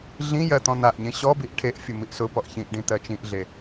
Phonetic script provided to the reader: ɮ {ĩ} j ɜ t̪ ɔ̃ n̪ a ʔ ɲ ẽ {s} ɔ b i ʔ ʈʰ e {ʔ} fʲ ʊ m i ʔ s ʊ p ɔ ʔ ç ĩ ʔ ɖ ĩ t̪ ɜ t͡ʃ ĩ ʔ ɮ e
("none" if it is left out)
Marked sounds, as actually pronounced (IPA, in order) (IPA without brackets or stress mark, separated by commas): ĩ, ɕ, ʔ